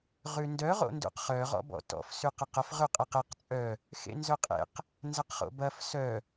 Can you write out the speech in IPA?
ʁʉndœ ʁo̰ndṵqχœ ʁɔ̰bɔ̰tɔ̰f sʉqɐqɐf ʁʉqʼɛqɛq t͡sʼœ | xḛnzœqʼḛq | nzɐqχo̰bɐf sœ

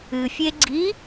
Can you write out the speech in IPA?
ɨfʲe ɡ͡ǀi

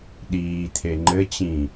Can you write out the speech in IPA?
ɗiːt̪ʰe ŋ͡ǃɘt͡ɕĩ

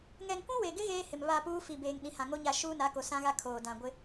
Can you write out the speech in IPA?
ŋɛ˨ŋkʷũ˦we˨ɡɪ˦ ɣeː˦hɪ˨mβa˦˨puː˦ fi˨beː˨ŋ ɗĩ˨hã˨ŋo˦ɲa˦˨ ʃuː˦na˨˦ ko˨ sã˦ɣa˦kʰoː˨ dã˨ɡʷɪ˦

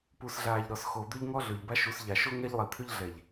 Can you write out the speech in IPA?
pu˨sɮaː˨ʎ ɾɔ˨sxo˨d̪ʏ˦ʎŋɔ˦ ɮʏː˨ʎba˦ʃu˨˦s ʎa˨ʃo˦ ŋɛ˦ʎlˠi˨t̪ʰʏ˦ʎɮɛ˨ʎ

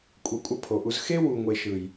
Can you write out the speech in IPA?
kʷʼʌ˨˦kʷʼʌ˧pʰo˨ʔu˧z xe˦ wu˨ŋʷe˨ ʃɯ˨j

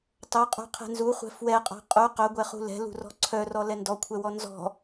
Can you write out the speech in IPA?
tˤoqʼo̤ qʰɛ̤nzuχʷɛ̤ fwɛqʼɔ̤ qʼu qœɡʷɛχṳ lɛ̤lṳrɔ̤ ǀʰœrɔ lɛndɔkʷʰɛwɔ nzɔ̤

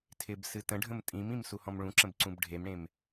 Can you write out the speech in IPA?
tʰɪb sɨtə̃ɖʱə̃m tʼĩmĩm suhɔ̃mɭũǁə̃b ǀũbɖʱemɽẽm

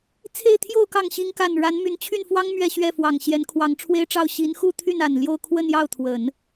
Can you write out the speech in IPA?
t͡sʰe˥˧ɪ̯t̪ʰjo˥˧ʊ̯ kɑ˥˩ŋɕi˥ŋ ka˥˩n ɻa˧˥nmy˧˥nt͡ɕʰy˥˩nfwɑ˥ŋ mɥɛ˥˧ɕɥɛ˥˩fwɑ˨˩ŋ ɕjɛ˧˥nkʰwɑ˧˥ŋʈ͡ʂʰwe˥ɪ̯ʈ͡ʂɑ˥˩ʊ̯ ɕi˧˥nxu˥˧t̪ʰy˥˩n a˨˩nljo˥˧ʊ̯ kʰwə˥˧njɑ˥˩ʊ̯ t̪ʰwə˨˩˦n

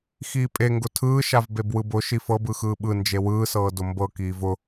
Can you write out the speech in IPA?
xiːpʼeŋɡʊ tʰɯːʃav bebwɯbʊ ʃifɤb ɯxɯːɓɯ nd͡ʒewɯːsɤː dʊmbɤ kiːvʊ

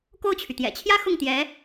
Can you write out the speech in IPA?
ko˥˩ʊ̯t͡ɕʰy˩t̪jɛ̰˨˩ t͡ɕʰjä˥ xʊ˥˩ŋt̪jɛ˧˥

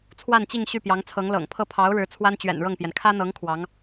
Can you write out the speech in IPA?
t͡sʰwa˥˧nt͡ɕi˥˧ŋ ɕy˥˩pjɑ˧˥ŋt͡sʰɤ˧˥ŋ lɤ̰˨˩ŋpʰɤ˥˩ pʰɑ˧˥ʊ̯ ɻɻ̩˧˥ t͡sʰwa˥n t͡ɕɥɛ̰˨˩nɻɤ˥˩ŋpjɛ˩n kʰä˥n̪ɤ˧˥ŋ kʰwɑ˧˥ŋ

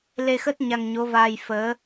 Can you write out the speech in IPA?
le˧xə˦˥t̚ ɲa˧ŋɲo˨˦vaː˧j fəː˨˦

